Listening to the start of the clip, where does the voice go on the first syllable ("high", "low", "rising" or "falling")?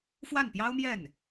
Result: falling